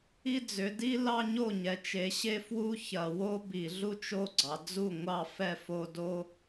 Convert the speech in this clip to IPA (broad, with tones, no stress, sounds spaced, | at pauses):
i˥˧ d͡z ʏ˨˦ d i˥ l ɑ˥˧ ɲ o˥˩ ɲ ɛ˨˦ t͡ʃ e˨˦ ɕ e˥˧ f w u˥˧ ç ɐ˧˩˧ w o˥ b i˧˩˧ ɮ u˥ t͡ʃ o˥˧ ɡ͡ǀ ɑ˨˦ d͡z u˥˩ ŋʷ ɑ˥˩ f ɛ˥˩ f o˥˧ d o˥